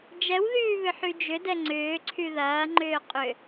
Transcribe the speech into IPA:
d͡ʒ ɛ w ð yː β ʏ ħ y d͡ʒ ʏ d ɛ ŋ͡ǀ ʏː ǀʰ y ð ɐː ŋ͡ǃ ʏː qʼ ʏ

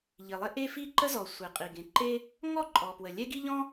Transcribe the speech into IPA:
ʎ i˩ lˠ e˥ ʔ e˥ f i˥ ǃ ə˥ z ɔ˩ sʷ e˩ qʼ i˩ ɡ ẽ˩ ǃ e˥ | ŋ ɔ˥ ǃʼ ɔ˩ p w ə˩ lʲ ɛ˥ ɡ i˥ ʎ ɔ̃˥

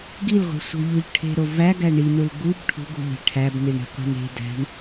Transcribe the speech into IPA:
ɡ i l ʁʷ e̤ sʷ e̤ ʎ u ʎ ʈʰ e̤ ɾ o v æ ɡ æ ɳ i n u l ɡ u b ʈʰ ṳ ɡ ṳ ʎ e̤ ʈʰ æ b n i ɳ i̤ qʷ e̤ n e̤ d æ̤ ɳ

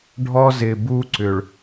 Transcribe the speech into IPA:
ɖʱ ɔ˦ z ɪ˨ b u˦ ǀ ʏ˨ ɭ

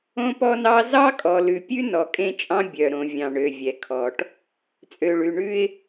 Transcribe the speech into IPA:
õ˦ p ɔ˦ n ɑ˦ z ɑ˦ kʼ ɔ˨ l ʉ˨ pʲ ʉ˦ n ɔ˨ kʼ ẽ˦˨ t͡ʃʼ ɑ̃˦ bʲ œ˨ ɾ õ˨ vʲ ɑ̃˨ ɳ ø˨ vʲ ɛ˨ kʰ ɔ˨ ʈ | t͡sʼ ø˨ ɭ ʉ˨ ɳ ʉ˦ ɪ̯

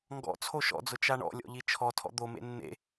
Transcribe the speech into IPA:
ŋ ɡ ɔ̰ t͡sʰ o ʃ ɔ̰ d͡z ʊ t͡ʃ a ɳ ɔ̰ lʲ ɔ̰ ʎ i t͡ʃʰ ɔ tʰ ɔ̰ d̪ o m ḛ nː ḛ

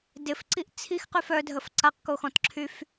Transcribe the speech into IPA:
d ɪ f ǀ i ʔ t͡sʰ i x q y f œ dʱ ə f ǀ a q k o x ɔ̃ t ǁʰ y f

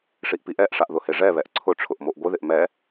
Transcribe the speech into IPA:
ʂ i ʔ p i ʔ ɛ ʔ ʂ a ʔ ð ʊ h e ʐ ɛ β ɛ ʔ ǀʰ ʊ ʈ͡ʂʰ ʊ ʔ m o ʔ ɡʷ ɪ ð ɪ ʔ m ɛ

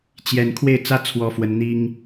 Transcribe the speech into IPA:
t͡ɕ j ɛ˥˧ n kʰ w e˥˩ ɪ̯ t͡s ä˥ t͡sʰ w ɔ˥ f w ə˥ n n̪ i˥ ŋ

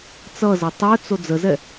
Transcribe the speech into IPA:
t͡s ʌ z ɐ tˤ œ t͡s o d͡z ə z ɛ

